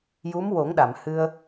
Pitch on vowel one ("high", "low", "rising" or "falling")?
rising